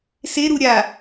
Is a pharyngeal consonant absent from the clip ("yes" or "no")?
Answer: yes